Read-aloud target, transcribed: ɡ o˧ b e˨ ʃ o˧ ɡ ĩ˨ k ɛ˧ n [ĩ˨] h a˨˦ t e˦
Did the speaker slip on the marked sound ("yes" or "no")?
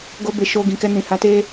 no